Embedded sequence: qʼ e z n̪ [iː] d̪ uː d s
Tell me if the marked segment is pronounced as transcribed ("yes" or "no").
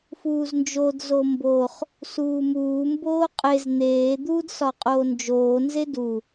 no